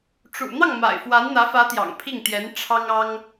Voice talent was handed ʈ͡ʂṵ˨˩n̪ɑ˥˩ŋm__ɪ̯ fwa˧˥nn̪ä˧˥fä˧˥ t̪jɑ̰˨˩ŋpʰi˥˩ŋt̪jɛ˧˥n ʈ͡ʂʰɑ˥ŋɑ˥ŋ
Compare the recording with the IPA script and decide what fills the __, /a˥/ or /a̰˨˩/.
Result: a̰˨˩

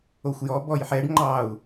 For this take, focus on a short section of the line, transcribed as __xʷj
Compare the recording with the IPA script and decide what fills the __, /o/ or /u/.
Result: o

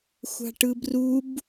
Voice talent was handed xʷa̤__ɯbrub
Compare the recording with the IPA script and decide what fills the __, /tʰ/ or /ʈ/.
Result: ʈ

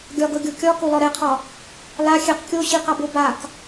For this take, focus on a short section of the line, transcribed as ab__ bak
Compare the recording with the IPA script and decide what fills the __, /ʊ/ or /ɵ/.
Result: ʊ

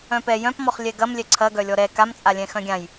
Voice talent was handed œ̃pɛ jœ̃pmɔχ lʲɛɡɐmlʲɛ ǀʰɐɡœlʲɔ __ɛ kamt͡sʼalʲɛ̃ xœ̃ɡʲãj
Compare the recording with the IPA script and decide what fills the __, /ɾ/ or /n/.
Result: ɾ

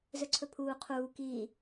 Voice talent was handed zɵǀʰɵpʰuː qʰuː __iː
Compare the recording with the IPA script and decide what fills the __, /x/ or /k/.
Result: k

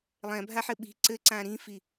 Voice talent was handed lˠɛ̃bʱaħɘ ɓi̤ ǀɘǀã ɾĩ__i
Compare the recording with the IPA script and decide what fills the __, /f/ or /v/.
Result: f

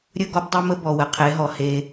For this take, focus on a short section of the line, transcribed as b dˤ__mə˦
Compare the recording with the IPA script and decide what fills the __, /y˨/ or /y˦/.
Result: y˦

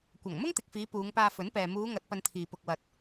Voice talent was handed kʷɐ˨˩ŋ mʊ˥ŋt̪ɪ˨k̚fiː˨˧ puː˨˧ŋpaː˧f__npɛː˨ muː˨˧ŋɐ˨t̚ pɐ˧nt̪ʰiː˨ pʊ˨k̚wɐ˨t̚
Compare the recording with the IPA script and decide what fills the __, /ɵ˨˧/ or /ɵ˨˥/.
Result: ɵ˨˥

